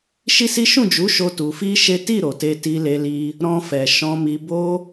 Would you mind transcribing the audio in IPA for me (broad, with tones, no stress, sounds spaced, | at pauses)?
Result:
ʃ i˦ s i˦ ʃ ũ˦˨ d͡ʒ u˨˦ ʃ o˧ t u˧ f i˦ ʃ e˦ t i˦˨ ɾ o˨ t e˧ t i˧ l e˧ l i˧ | ɾ ɔ̃˧ f ɛ˨ ʃ ɔ̃˧ m i˧ b o˦